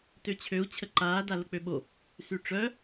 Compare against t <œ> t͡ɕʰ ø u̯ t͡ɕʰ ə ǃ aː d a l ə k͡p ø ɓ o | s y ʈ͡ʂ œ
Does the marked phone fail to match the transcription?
yes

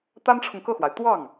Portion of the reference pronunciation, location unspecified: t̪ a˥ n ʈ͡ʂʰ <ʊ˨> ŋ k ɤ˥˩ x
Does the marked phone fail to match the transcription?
no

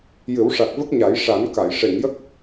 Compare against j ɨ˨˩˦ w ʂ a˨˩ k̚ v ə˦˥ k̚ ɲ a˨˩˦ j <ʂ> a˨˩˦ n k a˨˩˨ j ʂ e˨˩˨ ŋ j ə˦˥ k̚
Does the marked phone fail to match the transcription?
no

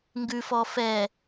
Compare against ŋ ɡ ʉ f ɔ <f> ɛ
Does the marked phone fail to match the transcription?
no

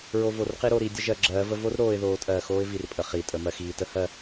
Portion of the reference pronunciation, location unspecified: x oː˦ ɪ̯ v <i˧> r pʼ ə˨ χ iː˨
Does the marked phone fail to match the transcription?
yes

